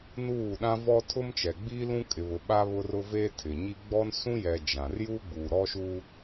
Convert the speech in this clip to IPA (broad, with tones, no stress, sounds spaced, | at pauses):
n uː˦˨ ɗ ã˦ v ɔ˦ tʰ ʊ˦ m t͡ʃ ɛ˨ ɡ͡b i˦ l ũ˦ kʼ ɪ˨ β ʊ˨ ɓ a˦ β ʊ˦ r ʊ˦ v eː˦ tʰ ɪ˨ ɲ i˦ ɡ͡b ɔ˦ n s ũ˦ j ɛ˨ d͡ʒ ã˨ r j uː˦ ɡ͡b uː˨ ɾ ɔ˦ ʃ uː˦